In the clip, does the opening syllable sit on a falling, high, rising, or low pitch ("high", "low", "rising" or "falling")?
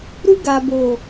high